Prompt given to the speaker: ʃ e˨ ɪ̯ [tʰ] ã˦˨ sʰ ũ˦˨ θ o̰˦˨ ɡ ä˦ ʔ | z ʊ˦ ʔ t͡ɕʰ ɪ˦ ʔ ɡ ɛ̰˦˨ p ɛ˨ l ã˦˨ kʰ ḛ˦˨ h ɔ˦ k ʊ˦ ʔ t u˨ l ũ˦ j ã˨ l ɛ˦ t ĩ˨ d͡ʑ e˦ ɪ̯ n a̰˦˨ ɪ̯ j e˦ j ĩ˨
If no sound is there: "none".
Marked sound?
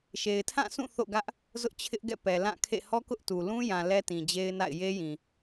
tʰ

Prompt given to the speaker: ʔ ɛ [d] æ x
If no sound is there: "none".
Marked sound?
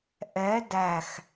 d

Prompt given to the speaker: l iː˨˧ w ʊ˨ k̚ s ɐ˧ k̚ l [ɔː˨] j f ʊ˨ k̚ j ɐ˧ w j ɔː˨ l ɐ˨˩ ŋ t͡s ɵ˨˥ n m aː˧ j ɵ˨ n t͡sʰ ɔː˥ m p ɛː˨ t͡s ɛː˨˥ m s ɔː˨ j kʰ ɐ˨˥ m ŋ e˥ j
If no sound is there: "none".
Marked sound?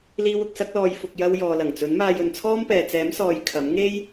ɔː˨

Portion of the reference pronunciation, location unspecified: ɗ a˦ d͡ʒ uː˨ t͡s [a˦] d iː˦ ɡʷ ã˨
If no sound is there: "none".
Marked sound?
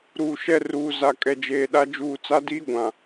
a˦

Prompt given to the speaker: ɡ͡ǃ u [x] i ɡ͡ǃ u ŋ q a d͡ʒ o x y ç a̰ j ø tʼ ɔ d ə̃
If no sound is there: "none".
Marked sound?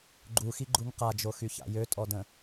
x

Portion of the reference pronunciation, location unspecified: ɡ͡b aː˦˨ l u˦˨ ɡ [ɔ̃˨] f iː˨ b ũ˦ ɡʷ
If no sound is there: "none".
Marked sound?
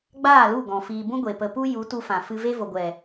ɔ̃˨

